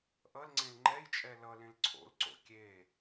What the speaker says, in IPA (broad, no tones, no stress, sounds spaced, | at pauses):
ʔ ʌ l ŋ͡ǀ ẽ l ŋ͡ǃ ɛ j t͡ʃʼ ɛ l ʌ l ẽ l ǀʰ o̰ l ǀ o̰ kʲ e